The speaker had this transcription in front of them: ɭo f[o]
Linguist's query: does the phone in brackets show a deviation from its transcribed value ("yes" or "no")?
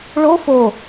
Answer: no